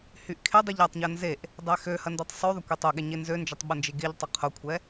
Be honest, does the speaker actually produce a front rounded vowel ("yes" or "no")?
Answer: yes